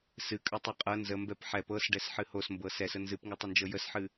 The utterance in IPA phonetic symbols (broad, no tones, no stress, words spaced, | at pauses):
sɨkʼətˤɤ qʼɤ nzəmbɛp ħɛp ɤsɖɛsħɨ hosmbɤ sɛsə nzɨpŋɨtˤənd͡ʒɤ jəsħɨ